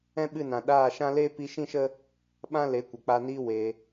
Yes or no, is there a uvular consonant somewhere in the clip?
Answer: no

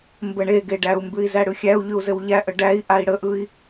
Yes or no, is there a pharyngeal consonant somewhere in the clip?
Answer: no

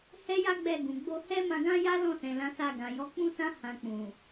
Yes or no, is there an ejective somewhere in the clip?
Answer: no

